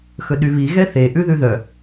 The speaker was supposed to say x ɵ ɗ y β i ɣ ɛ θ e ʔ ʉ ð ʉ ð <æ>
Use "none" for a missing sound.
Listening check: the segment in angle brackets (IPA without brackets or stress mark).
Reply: œ